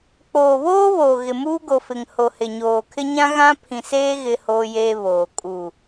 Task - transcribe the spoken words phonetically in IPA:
k͡p oː˨ β oː˦ β oː˨ ɣ ɪ˨ m uː˦ ɡ o˨ f ɪ˨ ŋ h o˨ h ɪ˨ ɲ oː˨ kʰ ɪ˦ ɲ ã˦ ɣ ã˦ pʰ ĩ˨ s eː˦ ɣ ɪ˦ h oː˦ j eː˦ β oː˨ kʼ uː˨

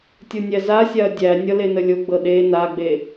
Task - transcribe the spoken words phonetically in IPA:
tʲ o nʲ æ z a sʲ a ɐ̯ dʲ æ nʲ ʌ l e n ə lʲ o ɡ͡b ɤ ɗ e n a ɡ͡b e

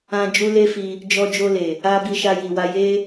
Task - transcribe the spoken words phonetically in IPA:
ã˧ d͡ʒ u˦ l e˦ f i˧ | d͡ʒ ɔ˧ d͡ʒ o˧ l e˨ | a˦ b i˧ ʃ a˧ j i˨ w a˧ j e˦

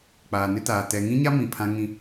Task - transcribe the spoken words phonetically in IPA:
k͡p aː˨ n ɪ˦ t aː˨ t ɛ˨ ŋ ĩ˦ ɲ a˦ m ĩ˨ pʰ ã˦ ŋ ĩ˦

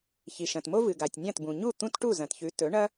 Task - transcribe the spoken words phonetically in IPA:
ç i˩ ʃ ɐ̃˩ t m o˥ v ɨ˩ ɡ a˩ tʲ nʲ ã˥˩ t b ũ˩ ɲ u˥˩ t̪ ũ˥ t ʈ u˥˩ z ɐ̃˩ t ç ʉ˩˥ t ɵ˩˥ ɳ ɐ˥

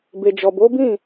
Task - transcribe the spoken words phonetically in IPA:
b e˨ d͡ʒ ɔ˨ b o˨˦ b ĩ˦˨

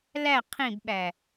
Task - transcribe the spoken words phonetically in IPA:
l æ qʰ ĩ b ɓ æ

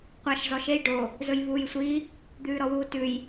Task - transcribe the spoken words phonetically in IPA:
qʷ ɑ ʃ z ɔ ʃ e j ɖ o | z ɵ j v uː j sʷ i | d̪ ʉː ɾ ɔ w uː t ʉ j

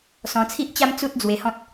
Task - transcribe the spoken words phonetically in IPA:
s ɔ̃˧ t͡sʰ i˦ ʔ t͡ɕ a˦ m t͡s u˦ t̚ d͡z w e˧ h ɔ̃˦ t̚

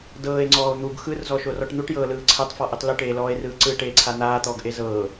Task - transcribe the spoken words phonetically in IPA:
d ɤː e̯ ŋ͡ǀ ɔː o̯ n̪ u ɡ x ɯ r z ɔ ʃ o r ɔ ʈ n̪ u ʈ j ɤː l ɯː ǀʰ ɛ tˤ f ɔ ʔ i tˤ l u ʈ eː l ɔː e̯ r ɯː ǀ ɯ ʈ eː ǀʰ a n̪ aː t̪ ɔː ɡ ʔ e z ɤː

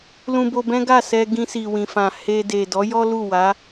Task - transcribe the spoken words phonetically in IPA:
l ũ˧ b o˧ b ɛ̃˦ ɡ a˦˨ s ɛ˧ ɡ ĩ˧ s i˨ w ĩ˨ f ã˨ h e˧ d e˨ d ɔ˨˦ j ɔ˦ l u˦˨ w a˨˦

